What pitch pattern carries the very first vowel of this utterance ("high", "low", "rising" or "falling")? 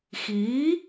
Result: rising